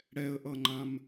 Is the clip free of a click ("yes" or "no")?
no